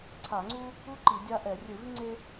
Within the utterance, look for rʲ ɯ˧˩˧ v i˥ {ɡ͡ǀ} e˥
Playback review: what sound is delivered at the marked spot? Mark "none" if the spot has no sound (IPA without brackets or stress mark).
ŋ͡ǀ